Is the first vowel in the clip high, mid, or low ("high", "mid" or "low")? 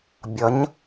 mid